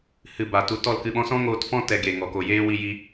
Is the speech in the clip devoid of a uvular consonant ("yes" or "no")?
yes